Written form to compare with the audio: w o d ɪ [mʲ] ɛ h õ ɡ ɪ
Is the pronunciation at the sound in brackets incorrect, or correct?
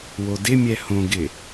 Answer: correct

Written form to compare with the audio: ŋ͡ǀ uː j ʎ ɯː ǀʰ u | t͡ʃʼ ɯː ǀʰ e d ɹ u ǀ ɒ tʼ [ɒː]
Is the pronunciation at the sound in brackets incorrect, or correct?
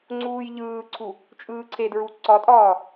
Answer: correct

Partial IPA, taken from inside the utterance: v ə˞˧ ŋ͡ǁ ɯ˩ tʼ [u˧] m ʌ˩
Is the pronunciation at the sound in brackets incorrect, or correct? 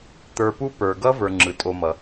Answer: incorrect: o˧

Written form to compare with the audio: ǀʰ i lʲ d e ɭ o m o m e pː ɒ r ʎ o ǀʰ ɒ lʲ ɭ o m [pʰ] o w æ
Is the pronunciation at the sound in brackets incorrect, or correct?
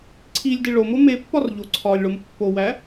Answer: incorrect: pː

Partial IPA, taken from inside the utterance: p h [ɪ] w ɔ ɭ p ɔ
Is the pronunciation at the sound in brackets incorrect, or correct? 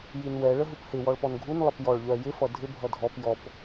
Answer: correct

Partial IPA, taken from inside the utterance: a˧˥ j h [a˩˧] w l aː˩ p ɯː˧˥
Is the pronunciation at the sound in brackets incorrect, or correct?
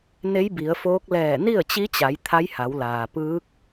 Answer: correct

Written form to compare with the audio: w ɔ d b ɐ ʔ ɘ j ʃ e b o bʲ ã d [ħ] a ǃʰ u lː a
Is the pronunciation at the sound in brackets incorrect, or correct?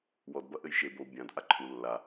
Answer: incorrect: ʔ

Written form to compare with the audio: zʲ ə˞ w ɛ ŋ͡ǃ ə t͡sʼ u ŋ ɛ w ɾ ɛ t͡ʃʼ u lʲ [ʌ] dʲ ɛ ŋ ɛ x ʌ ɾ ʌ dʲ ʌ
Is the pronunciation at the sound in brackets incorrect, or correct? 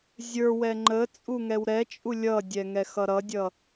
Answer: correct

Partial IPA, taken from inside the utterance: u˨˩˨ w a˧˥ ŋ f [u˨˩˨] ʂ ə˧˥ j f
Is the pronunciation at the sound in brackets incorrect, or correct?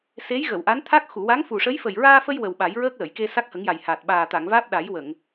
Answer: incorrect: u˨˩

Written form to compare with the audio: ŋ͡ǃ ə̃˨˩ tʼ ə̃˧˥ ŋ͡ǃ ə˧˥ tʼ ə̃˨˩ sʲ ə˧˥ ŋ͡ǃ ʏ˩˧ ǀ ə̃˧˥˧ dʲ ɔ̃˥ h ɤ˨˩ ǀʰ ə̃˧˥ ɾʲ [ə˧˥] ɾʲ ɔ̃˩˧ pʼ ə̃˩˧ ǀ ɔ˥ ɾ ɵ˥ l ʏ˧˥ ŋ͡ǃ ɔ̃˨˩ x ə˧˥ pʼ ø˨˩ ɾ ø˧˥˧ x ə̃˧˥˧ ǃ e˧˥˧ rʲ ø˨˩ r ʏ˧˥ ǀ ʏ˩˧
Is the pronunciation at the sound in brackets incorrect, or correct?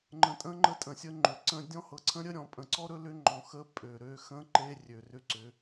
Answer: correct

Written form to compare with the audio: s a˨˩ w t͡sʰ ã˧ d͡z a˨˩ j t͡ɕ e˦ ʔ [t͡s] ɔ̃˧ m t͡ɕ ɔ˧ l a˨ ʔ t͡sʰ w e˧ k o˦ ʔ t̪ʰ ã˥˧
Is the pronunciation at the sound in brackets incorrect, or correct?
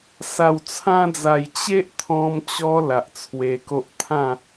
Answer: incorrect: t̪ʰ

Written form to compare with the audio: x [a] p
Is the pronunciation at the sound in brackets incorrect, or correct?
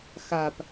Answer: correct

